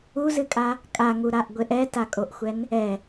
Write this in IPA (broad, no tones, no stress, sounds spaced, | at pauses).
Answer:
u z ɨ kʼ a | kʼ a ŋ u ɾ a ʔ ɡʷ e ʔ ɛ t a kʼ o ʔ xʷ ɛ n | ɛ